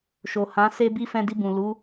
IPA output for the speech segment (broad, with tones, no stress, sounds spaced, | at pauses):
ʃ o˨ h ã˨˦ s e˦ b i˦ f ɛ̃˧ d i˧ b ũ˨ l u˨˦